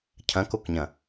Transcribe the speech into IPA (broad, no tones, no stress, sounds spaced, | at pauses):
cʰ ɐ̃ k o k ɲ ɐ̃